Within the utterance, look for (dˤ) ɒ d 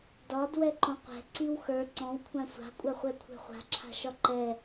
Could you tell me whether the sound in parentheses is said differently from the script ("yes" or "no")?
yes